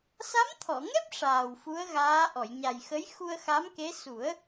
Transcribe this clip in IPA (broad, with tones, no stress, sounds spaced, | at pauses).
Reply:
s a˧˥ m t̪ʰ ɔ˨˩˨ ŋ ɛ˦˥ p̚ ʂ aː˨˩ w f u˧˥ ə̯ ɣ aː˧˥ ʔ ɔ˨˩˨ j ɲ a˨˩ j x ə˧˥ j x u˧ ə̯ x a˧˥ m k e˧˥ s u˨˩˦ ə̯